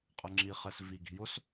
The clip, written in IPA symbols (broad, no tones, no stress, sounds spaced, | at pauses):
qʼ ə ŋ͡ǁ i χ ɛ s v i ɡ i̤ j ʊ s